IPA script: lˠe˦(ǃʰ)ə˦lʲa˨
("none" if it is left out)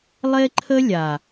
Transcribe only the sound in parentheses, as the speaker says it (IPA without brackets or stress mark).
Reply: ǃʰ